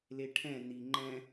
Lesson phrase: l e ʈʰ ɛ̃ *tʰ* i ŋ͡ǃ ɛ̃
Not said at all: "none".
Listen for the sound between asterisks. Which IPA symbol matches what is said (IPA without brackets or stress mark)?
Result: n̪